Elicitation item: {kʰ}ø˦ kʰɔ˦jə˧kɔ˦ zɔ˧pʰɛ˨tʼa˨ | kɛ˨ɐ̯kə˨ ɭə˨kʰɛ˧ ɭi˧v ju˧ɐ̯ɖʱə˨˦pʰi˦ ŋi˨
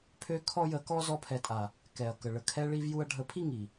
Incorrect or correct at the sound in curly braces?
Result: incorrect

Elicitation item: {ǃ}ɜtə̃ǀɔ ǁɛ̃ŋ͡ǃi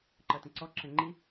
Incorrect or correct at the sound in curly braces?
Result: correct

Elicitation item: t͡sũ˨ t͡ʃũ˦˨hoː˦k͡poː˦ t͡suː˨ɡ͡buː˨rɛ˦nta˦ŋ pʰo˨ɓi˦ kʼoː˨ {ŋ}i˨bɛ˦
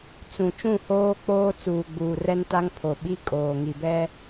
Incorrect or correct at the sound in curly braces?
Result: correct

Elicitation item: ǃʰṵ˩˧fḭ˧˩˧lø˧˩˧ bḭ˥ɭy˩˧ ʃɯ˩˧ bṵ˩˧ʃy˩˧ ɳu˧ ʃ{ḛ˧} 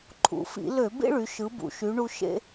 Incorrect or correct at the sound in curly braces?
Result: correct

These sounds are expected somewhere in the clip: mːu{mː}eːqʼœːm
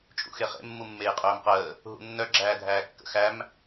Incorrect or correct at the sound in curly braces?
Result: correct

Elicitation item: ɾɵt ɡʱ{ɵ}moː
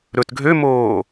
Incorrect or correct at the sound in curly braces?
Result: incorrect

